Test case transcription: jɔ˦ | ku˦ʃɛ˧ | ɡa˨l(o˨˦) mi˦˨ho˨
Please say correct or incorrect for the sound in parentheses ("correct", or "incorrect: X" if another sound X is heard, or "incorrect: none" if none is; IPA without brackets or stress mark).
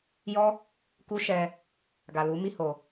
incorrect: u˨˦